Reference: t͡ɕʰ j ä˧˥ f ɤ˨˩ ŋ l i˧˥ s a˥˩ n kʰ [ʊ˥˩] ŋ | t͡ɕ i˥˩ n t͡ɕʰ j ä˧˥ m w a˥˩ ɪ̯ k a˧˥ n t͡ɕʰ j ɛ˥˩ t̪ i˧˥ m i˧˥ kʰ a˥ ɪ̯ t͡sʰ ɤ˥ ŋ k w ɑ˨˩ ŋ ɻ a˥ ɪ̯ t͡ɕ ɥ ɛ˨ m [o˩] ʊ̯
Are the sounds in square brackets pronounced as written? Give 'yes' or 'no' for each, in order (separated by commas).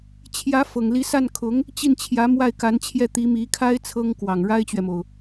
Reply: no, yes